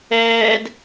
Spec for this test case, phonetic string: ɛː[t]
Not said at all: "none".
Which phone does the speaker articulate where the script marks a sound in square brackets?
d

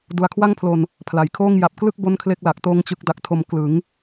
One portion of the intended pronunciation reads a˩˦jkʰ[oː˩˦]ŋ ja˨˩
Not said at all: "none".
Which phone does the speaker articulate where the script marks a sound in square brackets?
oː˥˩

